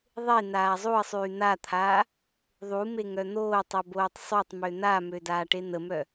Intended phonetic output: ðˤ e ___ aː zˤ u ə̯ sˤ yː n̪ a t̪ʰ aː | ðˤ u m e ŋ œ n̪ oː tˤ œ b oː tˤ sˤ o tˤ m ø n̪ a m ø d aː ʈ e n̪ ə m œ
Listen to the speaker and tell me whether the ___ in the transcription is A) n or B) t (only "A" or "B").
A